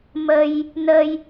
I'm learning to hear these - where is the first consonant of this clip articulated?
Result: lips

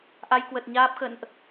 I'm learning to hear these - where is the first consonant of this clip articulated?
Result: throat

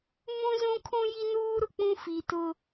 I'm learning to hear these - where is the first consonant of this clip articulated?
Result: lips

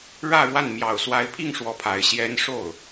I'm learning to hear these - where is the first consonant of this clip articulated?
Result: retroflex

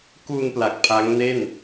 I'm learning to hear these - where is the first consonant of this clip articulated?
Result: velum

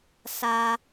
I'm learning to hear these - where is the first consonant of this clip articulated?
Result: tongue tip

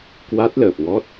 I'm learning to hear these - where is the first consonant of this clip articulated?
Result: velum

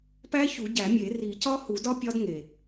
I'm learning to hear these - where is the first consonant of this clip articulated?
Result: lips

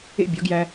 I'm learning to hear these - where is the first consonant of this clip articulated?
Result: lips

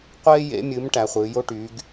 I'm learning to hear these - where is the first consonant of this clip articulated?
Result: uvula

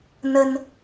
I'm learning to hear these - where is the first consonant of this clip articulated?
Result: tongue tip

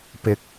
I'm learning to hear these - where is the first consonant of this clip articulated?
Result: lips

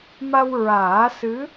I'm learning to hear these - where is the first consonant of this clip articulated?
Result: lips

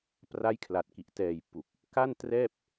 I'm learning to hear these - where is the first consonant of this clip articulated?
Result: lips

